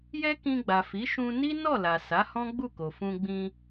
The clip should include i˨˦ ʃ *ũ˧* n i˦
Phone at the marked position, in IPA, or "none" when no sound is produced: ũ˧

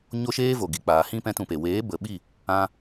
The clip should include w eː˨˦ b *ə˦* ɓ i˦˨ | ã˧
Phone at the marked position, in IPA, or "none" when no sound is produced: ə˨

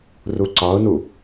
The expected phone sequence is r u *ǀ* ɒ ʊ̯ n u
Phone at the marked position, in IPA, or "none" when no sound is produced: ǀ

